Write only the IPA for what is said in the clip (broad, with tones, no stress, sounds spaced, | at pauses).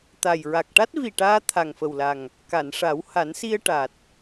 t̪ a˨˩ j ɹ a˨˩ k̚ ʈ a˦˥ t̚ v i˨˩ ʈ aː˧ t̪ʰ a˨˩ ŋ f ə˨˩ w l a˨˩ ŋ | k a˨˩˨ n ʂ a˨˩˦ w h a˨˩˦ n s i˧ ə̯ ʈ a˨˩ t̚